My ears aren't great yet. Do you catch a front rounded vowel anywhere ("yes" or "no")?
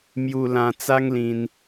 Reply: no